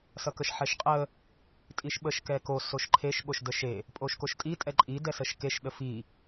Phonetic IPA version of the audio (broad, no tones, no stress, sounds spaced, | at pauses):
s ʌ k ə ʃ ħ ɛ ʃ qʼ ə | tʼ i ʃ ɓ ə ʃ k ɛ k o s o ʃ ǃʰ e ʃ ɓ o ʃ d ə ʃ e | pʼ o ʃ k o ʃ tʼ i tʼ ɛ ǃʼ i d ɛ s ə ʃ k e ʃ ɗ ə f i